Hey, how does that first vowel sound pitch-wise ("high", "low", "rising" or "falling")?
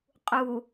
low